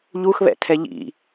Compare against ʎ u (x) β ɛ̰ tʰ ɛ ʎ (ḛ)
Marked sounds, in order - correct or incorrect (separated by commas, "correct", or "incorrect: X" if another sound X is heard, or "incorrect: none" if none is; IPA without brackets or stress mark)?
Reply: correct, incorrect: ḭ